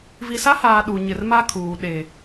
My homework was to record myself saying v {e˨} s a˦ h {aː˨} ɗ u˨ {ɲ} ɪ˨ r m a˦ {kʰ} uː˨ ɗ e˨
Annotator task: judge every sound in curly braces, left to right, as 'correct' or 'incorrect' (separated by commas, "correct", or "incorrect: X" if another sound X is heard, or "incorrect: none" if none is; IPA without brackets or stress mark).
incorrect: i˨, correct, correct, correct